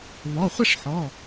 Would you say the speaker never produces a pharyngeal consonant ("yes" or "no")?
no